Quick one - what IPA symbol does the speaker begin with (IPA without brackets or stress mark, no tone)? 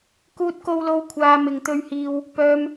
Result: k